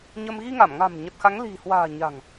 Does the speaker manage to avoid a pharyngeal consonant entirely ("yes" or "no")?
yes